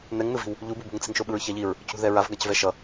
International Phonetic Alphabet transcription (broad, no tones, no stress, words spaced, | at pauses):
nɛŋnɯvi̤w | ʎububṳŋt͡si̤ŋ ʃoɓɯɹçaʎiɹ | cṳðɛɹav ɡacvɛʃʌ